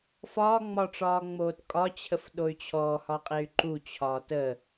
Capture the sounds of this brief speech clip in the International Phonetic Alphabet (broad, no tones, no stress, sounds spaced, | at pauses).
f ɒː ŋ͡m ɒ ʈ͡ʂ ɒː ŋ͡m oː t kʼ ɒ t͡ɕʰ ə f ɗ o y̯ t͡ɕʰ ɔː h ɒ qʼ e y̯ ǃ u t͡ɕʰ ɒː t ə